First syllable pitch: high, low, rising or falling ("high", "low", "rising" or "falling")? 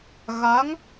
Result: rising